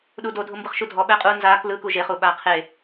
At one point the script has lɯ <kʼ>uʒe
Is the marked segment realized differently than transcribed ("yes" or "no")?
yes